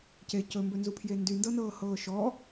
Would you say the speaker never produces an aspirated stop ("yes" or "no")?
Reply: no